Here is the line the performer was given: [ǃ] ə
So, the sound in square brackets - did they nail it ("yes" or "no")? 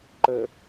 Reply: yes